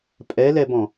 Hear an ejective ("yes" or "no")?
yes